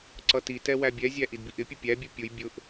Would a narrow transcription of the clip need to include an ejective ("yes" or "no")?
no